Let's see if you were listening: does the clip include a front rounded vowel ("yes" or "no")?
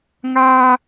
no